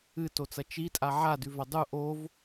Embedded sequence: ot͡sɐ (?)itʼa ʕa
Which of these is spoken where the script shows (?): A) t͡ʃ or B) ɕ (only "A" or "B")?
A